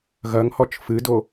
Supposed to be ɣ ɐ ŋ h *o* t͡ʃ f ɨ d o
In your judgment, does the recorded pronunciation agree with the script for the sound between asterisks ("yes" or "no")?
no